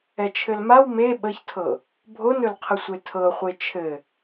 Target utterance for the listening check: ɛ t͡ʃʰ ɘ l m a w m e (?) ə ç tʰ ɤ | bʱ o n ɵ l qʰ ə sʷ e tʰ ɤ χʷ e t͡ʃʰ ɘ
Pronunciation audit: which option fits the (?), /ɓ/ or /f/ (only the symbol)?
ɓ